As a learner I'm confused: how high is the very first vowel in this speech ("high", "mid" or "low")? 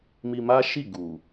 high